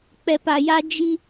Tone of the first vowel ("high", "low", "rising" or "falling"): low